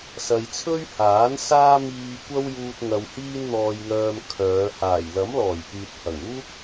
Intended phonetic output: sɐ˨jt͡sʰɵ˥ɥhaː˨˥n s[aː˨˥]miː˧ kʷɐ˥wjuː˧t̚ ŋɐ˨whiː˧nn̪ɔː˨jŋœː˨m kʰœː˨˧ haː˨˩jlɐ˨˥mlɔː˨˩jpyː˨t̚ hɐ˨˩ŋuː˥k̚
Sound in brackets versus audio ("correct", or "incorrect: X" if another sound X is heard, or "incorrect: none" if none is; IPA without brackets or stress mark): incorrect: aː˥